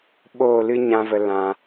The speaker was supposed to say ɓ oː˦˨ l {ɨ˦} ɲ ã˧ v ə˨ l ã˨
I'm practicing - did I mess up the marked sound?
no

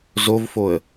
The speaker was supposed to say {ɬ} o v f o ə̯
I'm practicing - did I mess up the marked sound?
yes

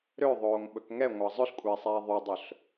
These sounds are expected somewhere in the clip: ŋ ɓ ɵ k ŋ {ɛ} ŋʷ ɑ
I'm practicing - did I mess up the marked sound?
no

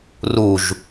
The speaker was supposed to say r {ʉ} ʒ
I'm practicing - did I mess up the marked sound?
yes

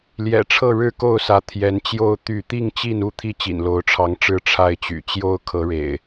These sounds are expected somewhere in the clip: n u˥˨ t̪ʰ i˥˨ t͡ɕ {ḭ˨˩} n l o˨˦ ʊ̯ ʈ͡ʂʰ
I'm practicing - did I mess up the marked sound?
no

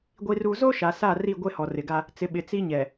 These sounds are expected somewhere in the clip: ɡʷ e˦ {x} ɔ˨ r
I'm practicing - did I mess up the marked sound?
yes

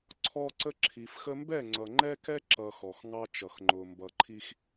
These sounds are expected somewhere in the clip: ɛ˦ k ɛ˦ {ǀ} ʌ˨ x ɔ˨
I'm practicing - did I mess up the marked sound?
yes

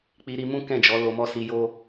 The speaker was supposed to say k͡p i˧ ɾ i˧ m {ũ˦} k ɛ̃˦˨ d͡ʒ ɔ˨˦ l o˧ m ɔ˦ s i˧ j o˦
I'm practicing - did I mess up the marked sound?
no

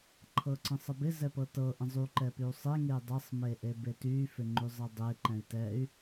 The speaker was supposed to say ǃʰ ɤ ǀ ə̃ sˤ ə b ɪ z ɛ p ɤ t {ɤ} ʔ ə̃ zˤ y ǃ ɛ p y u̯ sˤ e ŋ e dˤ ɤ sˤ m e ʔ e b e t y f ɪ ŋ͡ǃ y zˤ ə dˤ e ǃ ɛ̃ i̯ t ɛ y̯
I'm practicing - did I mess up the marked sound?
no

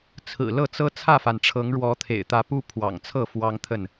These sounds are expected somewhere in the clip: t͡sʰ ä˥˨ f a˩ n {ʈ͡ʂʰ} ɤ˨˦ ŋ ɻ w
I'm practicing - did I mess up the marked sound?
no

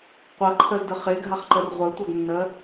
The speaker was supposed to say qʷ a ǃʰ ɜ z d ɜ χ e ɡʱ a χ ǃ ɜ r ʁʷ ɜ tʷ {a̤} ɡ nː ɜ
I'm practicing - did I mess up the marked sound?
yes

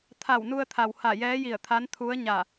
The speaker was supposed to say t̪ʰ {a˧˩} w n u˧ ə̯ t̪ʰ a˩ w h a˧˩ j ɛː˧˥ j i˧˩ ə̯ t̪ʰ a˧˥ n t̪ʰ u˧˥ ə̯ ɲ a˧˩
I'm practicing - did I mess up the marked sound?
no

